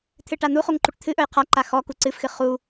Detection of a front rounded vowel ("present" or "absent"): absent